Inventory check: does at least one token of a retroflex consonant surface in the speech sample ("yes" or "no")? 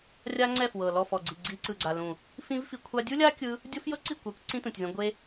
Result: no